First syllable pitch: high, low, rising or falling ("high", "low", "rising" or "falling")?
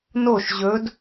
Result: falling